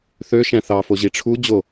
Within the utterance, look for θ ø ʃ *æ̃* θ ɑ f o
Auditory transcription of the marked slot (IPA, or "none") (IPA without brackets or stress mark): æ̃